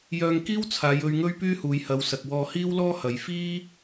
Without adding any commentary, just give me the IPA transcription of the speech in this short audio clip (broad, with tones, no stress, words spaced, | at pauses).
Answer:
jœː˧ŋkiː˥wt͡sʰaː˨˧jɵ˧ɥ ŋɵ˥ɥpyː˥huː˨˧jhɐ˨˧w sɐ˨k̚wɔː˧hiː˥wlɔː˥ hɐ˨˧j fiː˥